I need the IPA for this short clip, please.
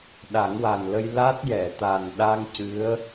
ɗ a˨˩˦ ŋ w a˨˩ n l ə˧ j l a˦˥ t̚ j ɛ˨˩˨ t̪ a˨˩ n ɗ a˧ ŋ c ɨ˧˥ ə̯

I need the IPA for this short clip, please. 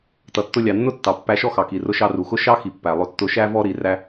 t ʌ˩ tː ʊ˧ lʲ ɑ˩ nː ʊ˥ tː ɑ˩ pː æ˧ ʃ ɔ˥ x ɑ˩ k i˩ r ʊ˧ ʃ ɑ˧ r u˩ x ʊ˥ ʃ ɑ˥ x i˩ pː æ˩ lˠ ʊ˧ tː ʊ˧ ʃ æ˥ v ɔ˥ ɾ i˧ r æ˥

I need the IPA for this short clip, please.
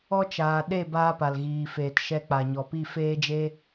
ɔ˦ t͡ʃ aː˨ ɗ e˦˨ b aː˦ p a˨ l ɣ iː˨ f eː˨ t ʃ ɛ˧ k͡p a˨ ɲ ɔ˨ p i˦˨ f eː˦ d͡ʒ e˦

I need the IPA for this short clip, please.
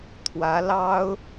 t̪ʰ w ä˧˥ l ɑ˥ ʊ̯

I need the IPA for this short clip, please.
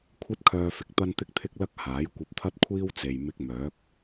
kʷʰ ɐ˥ t̚ kʰ œː˧ f ɪ˨ k̚ t̪ ɐ˥ n t̪ ɪ˥ k̚ t̪ʰ ɪ˥ k̚ l ɐ˥ k̚ h aː˨˥ j kʷ ɐ˧ p̚ t̪ʰ ɐ˥ t̚ kʷʰ iː˥ w t͡s e˨ j m ɪ˧ k̚ m œː˨˥ k̚

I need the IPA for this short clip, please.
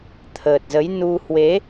t̪ʰ əː˨˩ t̚ z ə˨˦ j n u˧ h w e˨˦

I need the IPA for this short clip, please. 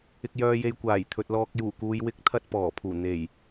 ɪ˨ k̚ j œː˨ j e˨ j kʷ aː˨˩ j t̪ʰ ɵ˨ t̚ l ɔː˨ k̚ j uː˨˩ k uː˨ j w ɪ˨˥ k̚ t̪ʰ ɐ˧ t̚ p ɔː˨˩ pʰ uː˨˩ n̪ e˨˩ j

